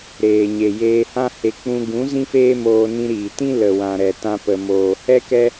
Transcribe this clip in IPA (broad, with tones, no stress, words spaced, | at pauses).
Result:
ɾeː˨ɲe˨ jeː˧hã˦he˧ k͡pũ˧ɡũ˨˦ zĩ˦feː˦moː˧ nĩ˧ɾiː˨tĩ˦ lə˨wã˨ ɾɛ˨tã˧pə˨ moː˨ hɛ˦kɛ˦